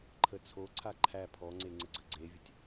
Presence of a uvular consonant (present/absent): absent